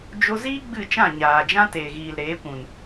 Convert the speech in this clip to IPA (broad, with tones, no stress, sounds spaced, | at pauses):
d͡ʒ o˧ z iː˦ ɡ͡b ɨ˦˨ t͡ʃ ã˦˨ ɲ aː˨ d͡ʒ ã˦ t eː˨ ɣ iː˨ l ɾ eː˨˦ kʷ ũ˨ n